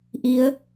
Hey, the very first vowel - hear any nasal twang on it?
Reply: no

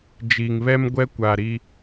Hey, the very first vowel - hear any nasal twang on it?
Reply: no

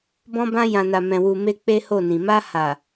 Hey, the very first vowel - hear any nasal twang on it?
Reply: yes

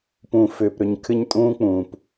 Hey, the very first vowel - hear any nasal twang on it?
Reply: yes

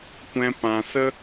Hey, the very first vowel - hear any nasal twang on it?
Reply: yes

